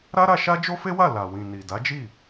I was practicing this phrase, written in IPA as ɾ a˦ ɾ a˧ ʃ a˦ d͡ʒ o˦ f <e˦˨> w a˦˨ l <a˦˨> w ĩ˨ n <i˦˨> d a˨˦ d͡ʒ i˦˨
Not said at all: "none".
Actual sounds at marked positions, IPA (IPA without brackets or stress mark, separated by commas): e˦, a˨, i˨